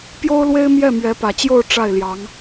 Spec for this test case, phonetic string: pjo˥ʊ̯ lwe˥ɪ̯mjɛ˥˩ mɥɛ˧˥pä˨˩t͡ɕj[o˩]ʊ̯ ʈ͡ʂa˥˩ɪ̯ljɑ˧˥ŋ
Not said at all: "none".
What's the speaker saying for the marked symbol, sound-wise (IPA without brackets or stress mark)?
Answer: o˥˧